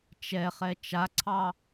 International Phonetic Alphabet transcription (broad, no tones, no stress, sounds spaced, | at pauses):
t͡ʃ ɛ χ ɛ t͡ʃ a ǀʰ ɑ